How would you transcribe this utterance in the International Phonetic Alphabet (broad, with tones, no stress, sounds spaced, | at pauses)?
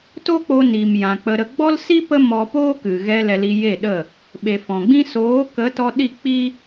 t o˦ k͡p o˧ n i˨ m j ã˨ k͡p ə˧ ɾ ə˧ ɡ͡b ɔ˦ l s i˦ p ə˦ m ɔ˧ p oː˦ k ɨ˨ ɣ ɛ˧ l ɛ˧ l i˧ j e˦˨ ɗ ə˦˨ | ɓ e˨ f ɔ̃˨ ɡ͡b ĩ˦ s oː˨˦ k ə˨˦ t ɔ˧ ɗ i˦˨ k͡p i˦